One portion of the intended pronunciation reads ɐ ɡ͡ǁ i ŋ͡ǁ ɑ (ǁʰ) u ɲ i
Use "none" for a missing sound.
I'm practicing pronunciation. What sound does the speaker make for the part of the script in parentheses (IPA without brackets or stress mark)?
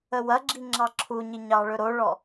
ǁʰ